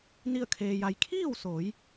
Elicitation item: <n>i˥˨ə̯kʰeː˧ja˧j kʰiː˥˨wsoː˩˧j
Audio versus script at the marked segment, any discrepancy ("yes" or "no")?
no